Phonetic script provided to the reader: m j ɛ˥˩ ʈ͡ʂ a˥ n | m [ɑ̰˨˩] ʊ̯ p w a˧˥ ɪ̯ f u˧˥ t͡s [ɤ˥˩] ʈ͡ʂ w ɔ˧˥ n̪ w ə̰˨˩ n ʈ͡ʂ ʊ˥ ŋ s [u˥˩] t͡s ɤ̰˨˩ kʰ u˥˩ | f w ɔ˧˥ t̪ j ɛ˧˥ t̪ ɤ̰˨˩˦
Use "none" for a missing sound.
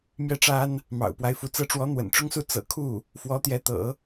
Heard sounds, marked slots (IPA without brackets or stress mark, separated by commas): ɑ̰˨˩, ɤ˧˥, u˥˩